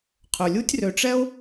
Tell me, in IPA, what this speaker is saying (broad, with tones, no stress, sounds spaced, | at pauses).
qʰ ɵ˩ lʲ u˦ tʲ r ø˨ ʈ͡ʂ ɛ˥ o̯